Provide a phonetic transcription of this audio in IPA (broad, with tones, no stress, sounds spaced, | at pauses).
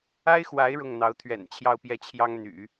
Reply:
a˥ ɪ̯ x w a˧˥ ɪ̯ ɻ ʊ˥˩ ŋ n̪ ɑ˧˥ ʊ̯ t̪ʰ ɥ ɛ̰˨˩ n t͡ɕʰ j ɑ˥˧ ʊ̯ p j ɛ˥˩ t͡ɕʰ j ɑ˥ ŋ n̪ y̰˨˩˦